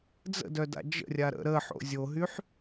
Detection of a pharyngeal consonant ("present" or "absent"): present